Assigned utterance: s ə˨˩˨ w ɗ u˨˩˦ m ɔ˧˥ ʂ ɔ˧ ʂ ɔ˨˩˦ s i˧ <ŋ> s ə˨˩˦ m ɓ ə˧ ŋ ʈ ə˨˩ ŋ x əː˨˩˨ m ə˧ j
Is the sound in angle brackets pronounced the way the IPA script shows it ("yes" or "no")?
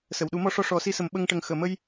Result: no